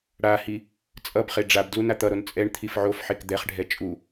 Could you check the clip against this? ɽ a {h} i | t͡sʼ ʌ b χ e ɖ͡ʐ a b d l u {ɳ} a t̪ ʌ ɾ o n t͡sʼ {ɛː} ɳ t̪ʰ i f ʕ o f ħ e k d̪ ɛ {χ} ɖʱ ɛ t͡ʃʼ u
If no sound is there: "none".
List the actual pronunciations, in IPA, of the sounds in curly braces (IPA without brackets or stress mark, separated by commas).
h, n, ɛ, χ